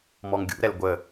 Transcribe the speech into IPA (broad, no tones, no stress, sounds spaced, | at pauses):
m ɔ ŋ ɡʲ ṵ ɾ ɛ l ɡʷ ə